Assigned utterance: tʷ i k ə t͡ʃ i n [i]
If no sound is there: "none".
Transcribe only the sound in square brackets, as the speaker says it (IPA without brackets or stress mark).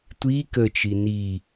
i